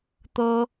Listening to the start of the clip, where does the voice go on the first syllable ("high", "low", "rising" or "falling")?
high